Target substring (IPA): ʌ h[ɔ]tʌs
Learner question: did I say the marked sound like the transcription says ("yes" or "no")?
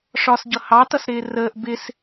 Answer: no